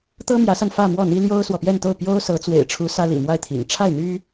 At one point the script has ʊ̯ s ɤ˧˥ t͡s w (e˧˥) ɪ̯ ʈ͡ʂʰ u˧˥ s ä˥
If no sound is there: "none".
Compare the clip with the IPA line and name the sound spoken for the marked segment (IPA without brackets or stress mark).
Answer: ḛ˨˩